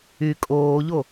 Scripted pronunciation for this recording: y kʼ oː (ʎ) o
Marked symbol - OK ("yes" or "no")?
yes